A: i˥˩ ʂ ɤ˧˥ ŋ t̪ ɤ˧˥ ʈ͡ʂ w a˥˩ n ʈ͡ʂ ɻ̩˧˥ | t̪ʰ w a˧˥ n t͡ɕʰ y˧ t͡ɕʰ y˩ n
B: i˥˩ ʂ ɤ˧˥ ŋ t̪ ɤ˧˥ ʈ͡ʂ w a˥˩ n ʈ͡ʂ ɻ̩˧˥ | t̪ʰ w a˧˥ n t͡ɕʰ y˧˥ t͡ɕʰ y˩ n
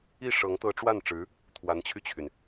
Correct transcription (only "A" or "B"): A